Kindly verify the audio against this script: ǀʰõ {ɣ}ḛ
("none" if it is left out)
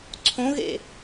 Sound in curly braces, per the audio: ɣ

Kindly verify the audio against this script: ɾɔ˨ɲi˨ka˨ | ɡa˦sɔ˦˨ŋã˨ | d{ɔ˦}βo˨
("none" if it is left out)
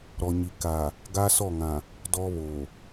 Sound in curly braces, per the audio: ɔ˦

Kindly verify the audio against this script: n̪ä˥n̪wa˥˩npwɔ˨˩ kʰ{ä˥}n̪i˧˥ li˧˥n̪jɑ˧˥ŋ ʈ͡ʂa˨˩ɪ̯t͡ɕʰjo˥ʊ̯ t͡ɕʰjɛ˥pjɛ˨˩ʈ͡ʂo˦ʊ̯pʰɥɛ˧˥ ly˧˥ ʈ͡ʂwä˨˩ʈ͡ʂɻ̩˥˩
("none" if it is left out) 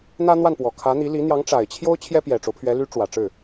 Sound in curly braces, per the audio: ä˧˥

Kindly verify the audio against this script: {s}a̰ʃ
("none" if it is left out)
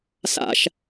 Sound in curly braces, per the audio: s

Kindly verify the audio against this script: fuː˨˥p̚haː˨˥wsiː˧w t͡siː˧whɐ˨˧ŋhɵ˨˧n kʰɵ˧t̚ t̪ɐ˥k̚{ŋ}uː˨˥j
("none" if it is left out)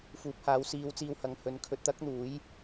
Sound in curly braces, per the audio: n̪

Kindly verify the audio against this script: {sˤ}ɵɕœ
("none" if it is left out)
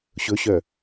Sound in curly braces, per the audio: ɕ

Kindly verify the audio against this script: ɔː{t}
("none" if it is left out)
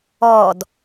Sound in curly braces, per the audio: d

